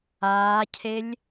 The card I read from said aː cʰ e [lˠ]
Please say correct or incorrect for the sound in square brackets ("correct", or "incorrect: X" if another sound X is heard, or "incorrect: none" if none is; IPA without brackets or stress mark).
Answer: incorrect: lʲ